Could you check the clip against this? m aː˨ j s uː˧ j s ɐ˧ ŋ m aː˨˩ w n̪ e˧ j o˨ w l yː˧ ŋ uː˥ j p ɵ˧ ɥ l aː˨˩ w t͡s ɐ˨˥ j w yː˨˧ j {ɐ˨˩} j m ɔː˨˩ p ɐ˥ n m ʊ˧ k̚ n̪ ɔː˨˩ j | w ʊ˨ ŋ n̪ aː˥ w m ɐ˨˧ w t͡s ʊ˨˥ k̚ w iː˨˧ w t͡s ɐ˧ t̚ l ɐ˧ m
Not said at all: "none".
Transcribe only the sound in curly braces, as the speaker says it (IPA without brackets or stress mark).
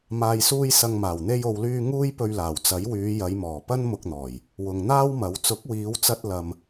ɐ˨˧